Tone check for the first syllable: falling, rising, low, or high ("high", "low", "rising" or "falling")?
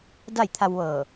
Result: falling